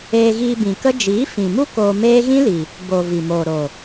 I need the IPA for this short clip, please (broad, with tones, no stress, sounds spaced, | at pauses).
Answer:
eː˧ ɣ iː˧ b ĩ˨ k ə˦ d͡ʒ iː˨˦ f ĩ˨ m u˦ k oː˧ m eː˦ ɣ ĩ˦ l i˨ | b o˨ v i˨ m oː˨ ɾ o˨